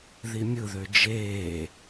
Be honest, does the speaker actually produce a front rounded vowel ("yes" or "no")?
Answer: yes